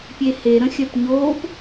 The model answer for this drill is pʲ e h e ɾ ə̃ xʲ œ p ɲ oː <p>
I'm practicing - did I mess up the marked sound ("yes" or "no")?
no